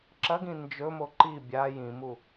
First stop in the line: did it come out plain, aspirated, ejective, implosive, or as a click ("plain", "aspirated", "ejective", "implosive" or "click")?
click